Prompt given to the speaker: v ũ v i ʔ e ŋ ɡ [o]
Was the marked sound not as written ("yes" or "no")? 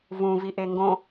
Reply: yes